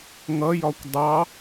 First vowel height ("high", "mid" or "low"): mid